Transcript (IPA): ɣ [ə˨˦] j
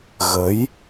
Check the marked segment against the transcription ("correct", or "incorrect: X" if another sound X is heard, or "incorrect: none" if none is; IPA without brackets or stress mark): correct